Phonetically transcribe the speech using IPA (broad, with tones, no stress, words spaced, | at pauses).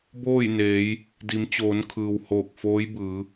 boː˥˨jneː˩˧j | di˩˧mt͡ɕoː˩˧n kʰɯː˩whoː˧˩k̚foː˧˥j bɯː˩˧